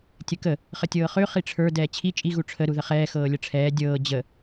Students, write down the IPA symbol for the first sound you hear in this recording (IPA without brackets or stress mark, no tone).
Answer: tʲ